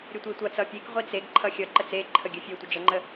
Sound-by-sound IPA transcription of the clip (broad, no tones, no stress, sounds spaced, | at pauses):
ɾʲ ə tʷ i tʷ ʌ t͡s ʌ pʲ e k ʁʷ i t͡s e ɡ ǃʰ ʌ xʲ ʌ ǃ ə t͡s e ǃʰ ə ɡʲ ə fʲ e tʷ ə d͡ʒ ə ŋ͡ǃ ə